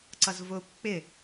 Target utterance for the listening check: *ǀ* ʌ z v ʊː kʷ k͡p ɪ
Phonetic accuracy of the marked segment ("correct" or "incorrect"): correct